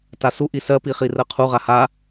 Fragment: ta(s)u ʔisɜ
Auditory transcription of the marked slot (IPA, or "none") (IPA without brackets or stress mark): s